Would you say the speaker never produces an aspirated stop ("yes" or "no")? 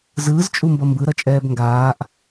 yes